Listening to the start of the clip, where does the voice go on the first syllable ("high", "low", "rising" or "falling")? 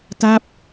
falling